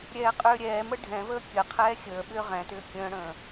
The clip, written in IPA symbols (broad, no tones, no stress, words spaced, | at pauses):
ɾʲɛːqʼʏːɾʲɛːmə ɖʱɛ̃vəː kʲəqʰɛː xʲəːɓʏː ʁɛ̃tʏː kʲə̃ːɽə̃ː